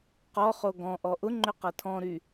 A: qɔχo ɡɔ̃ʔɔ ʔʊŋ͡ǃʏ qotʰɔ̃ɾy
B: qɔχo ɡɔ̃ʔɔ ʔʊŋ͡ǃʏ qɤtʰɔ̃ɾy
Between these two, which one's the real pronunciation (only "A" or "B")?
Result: B